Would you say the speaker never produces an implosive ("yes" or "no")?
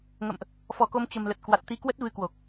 yes